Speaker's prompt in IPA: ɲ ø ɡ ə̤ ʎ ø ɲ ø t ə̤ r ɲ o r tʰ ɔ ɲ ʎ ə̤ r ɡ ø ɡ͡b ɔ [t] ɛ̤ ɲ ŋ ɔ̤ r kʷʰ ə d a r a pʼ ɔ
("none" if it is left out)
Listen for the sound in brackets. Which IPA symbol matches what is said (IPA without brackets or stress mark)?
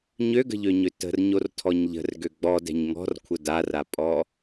d